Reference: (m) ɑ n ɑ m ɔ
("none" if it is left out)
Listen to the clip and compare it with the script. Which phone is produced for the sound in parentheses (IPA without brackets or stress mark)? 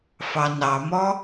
f